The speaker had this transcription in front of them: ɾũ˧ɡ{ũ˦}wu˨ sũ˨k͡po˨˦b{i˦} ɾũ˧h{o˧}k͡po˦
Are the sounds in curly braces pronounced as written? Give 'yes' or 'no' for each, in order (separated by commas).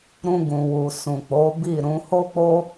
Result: no, no, no